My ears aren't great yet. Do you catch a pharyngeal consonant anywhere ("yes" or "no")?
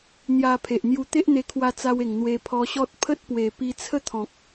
no